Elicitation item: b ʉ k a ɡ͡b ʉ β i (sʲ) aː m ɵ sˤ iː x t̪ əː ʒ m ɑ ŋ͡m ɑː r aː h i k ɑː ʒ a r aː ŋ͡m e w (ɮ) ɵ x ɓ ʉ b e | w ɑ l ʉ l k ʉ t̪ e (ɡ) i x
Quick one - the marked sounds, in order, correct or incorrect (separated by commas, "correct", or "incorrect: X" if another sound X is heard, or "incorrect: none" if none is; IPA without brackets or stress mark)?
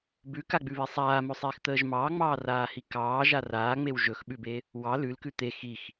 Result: incorrect: sˤ, incorrect: ʒ, incorrect: x